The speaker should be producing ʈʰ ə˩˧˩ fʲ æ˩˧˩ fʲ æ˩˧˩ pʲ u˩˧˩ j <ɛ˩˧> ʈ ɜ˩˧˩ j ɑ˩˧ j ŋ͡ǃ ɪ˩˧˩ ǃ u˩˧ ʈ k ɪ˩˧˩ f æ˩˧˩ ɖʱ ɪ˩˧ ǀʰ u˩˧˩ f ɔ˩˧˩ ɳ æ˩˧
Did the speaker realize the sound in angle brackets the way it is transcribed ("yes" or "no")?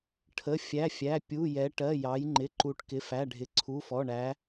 yes